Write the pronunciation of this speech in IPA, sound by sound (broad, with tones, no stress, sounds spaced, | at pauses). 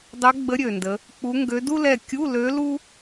dˤ ɛ˧˥ ɡ͡b ə˧˥ ɾʲ ø˨˩ n d ə˩˧ | k͡p u˧˥ ŋ ɡ ø˧˥ d u˥ l ɛ˦˨ kʲ u˧˥˧ l ø˧˥ l u˥